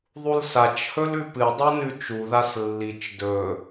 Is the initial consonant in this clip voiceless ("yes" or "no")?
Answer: no